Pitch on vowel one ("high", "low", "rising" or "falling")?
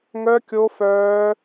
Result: high